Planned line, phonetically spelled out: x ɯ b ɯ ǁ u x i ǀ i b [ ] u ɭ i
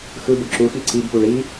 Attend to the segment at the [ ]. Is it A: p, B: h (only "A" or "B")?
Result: A